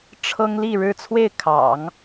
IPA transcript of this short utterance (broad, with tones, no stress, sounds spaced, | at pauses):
ʈ͡ʂʰ ɤ˥ ŋ l i˥˧ ɻ ɻ̩˥˧ t͡sʰ w e˥˩ ɪ̯ kʰ ɑ̰˨˩˦ ŋ